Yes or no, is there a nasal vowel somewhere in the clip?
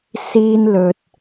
no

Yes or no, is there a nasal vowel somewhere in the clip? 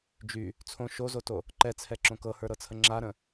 yes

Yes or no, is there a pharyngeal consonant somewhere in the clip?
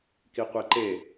no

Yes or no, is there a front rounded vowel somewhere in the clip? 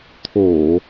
no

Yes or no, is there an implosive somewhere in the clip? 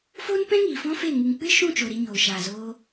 no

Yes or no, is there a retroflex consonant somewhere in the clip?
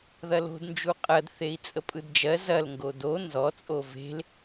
no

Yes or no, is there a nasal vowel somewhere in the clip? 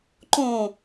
yes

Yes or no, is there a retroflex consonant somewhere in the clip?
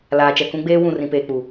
no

